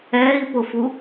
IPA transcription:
ɛː i̯ p ʊ f u

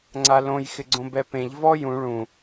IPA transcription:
ŋ͡ǀ a l õ j x ɪ ɡ͡ǀ õ b ɛ p ẽ ʎ v ɔ j ũ ɭ ũ

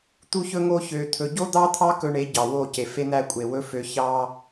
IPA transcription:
t̪ u˦ ç ɵ˦ ŋ o˦ ç ø˧ t̪ʰ ɵ˧ ɟ o˦ d̪ ɑ˦ t̪ʰ ɑ˦ k ɵ˧ ɳ e˨˦ ɟ ɑ˨ w o˦˨ c e˨ f e˦ n̪ æ˦ kʷʼ e˨ w ɵ˦ f ø˧ ç ɑ˦

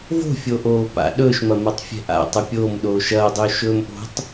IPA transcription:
v o̤ fʲ o ʔ oː p a̰ ɗ ɵː ʃ m ɐ m ɐ tˤ fʲ ɛ̤ ʔ a̰ tˤ ɐ pʲ oː m ɗ oː ʃ ɐː dˤ ɵː ʃ ɵː m ʔ o̤ tˤ

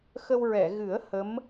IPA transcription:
x ə˧ w ɹ ɛ˨˩˨ ɣ ɨ˨˩˦ ə̯ h ə˧˥ m

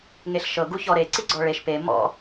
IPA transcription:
ŋ e ɬ ʃ ɤ ɡ u ç ɔ ɾ e ǀ i ɡ͡ǀ ɔ ɭ e ʃ p e m ɔ̰

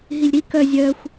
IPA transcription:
ɦ i lʲ ɾ i k œ zʲ œ xʷ

